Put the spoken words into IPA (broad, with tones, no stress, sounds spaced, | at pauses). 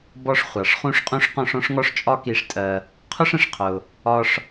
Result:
b ɔ˧ ʂ χʷ ɑ˩ ʂ χ ũ˧ ʂ qʼ ũ˧ ʂ q ɔ̃˥ ʂ ɔ̃˥ ʂ ŋ ɔ˥ ʂ t͡ʃʼ ɒ˥ k i˧ ʂ tʼ ɜ˧ | qʰ ʊ˥ ʂ ə̃˩ ʂ qʰ ʊ˧ | ɒ˥ ʂ